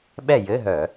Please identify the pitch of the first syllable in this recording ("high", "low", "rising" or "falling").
falling